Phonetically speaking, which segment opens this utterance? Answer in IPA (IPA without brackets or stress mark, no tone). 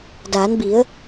d